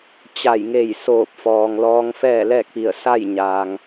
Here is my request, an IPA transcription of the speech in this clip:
t͡ɕ a˧˩ j ŋ e˧˩ j s oː˧˩ p̚ f ɔː˩ ŋ l ɔː˧ ŋ f ɛː˥˨ l ɛː˥˨ k̚ p i˧˩ ə̯ s a˥˨ j ɲ aː˩ ŋ

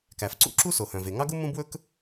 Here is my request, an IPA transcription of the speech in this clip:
k æ˩ f ǀ ṵ˥ ǁ u˥ s o˩ h œ̃˩ v e˩ ŋ ɑ˥ ɡ u˥ m ũ˥ b w ɵ˥ k

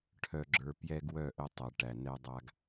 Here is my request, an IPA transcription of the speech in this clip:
ʈʰ œ˨ ɡ͡ǁ ə˞˨ p j ɛ˦ ɡ w œ˦˨ ʔ ə˦ tˤ ə˨ ʈ æ˨ n ɛ˦ dˤ a˦ ɡ

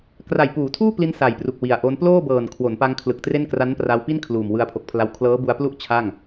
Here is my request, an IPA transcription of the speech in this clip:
k r a˨˩ j p uː˩˦ tʰ uː˥˩ p l i˧ n s a˨˩ j p r u˨˩ k̚ w i˨˩ a̯ ʔ o˦˥ n p l oː˥˩ b ɤː˨˩ n kʰ w o˩˦ n p a˧ ŋ kʰ l ɯ˨˩ k̚ t r e˥˩ n k r a˦˥ n p r a˧ w p i˥˩ n kʰ l uː˨˩ m w ɯ˧ a̯ pʰ o˨˩ k̚ pʰ l a˦˥ w kʰ l ɤː˦˥ b u˧ a̯ p l u˥˩ ʔ t͡ɕʰ a˥˩ ŋ

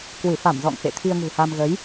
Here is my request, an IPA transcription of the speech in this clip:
k w ɨ˧˩ f a˧˩ m z ɔ̰˧˨ ŋ f ḛ˧˨ t̪ʰ i˧ ə̯ ŋ ṳ˨˩ h a˧ m ɣ ə˨˦ j

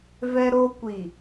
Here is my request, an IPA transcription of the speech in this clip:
v ɛ˦ ɾ o˦ kʷ i˨

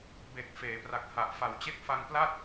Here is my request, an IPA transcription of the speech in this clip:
b e˨˩ k̚ f eː˩˦ p r a˨˩ k̚ h a˨˩ ʔ f a˨˩ w t͡ɕ e˥˩ k̚ f a˧ ŋ p l a˥˩ t̚

